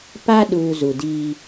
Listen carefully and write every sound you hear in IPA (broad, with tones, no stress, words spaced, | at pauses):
pa˦ɗuː˨ zu˨diː˦